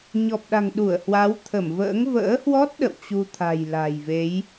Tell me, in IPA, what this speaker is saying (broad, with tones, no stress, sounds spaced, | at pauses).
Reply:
ɲ ɔ˨˩ p̚ ɗ a̤˨˩ ŋ ɗ u˧˩ ə̯ h w a˨˦ w t̪ʰ ə˧˩ m v ə̰ː˧˥ ŋ v ə̰ː˧˥ h w ɔ˦˥ t̚ ɗ ə̰˧˨ w t͡ɕ u˧ t̪ʰ a̤˨˩ j l a̤˨˩ j v e˨˦ j